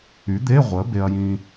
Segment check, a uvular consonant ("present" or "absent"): present